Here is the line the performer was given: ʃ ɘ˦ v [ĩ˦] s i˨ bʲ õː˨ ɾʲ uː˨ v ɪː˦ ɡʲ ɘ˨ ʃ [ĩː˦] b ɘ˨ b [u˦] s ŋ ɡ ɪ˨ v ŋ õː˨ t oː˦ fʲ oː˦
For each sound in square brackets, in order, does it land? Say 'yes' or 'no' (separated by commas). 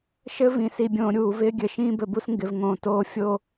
no, yes, yes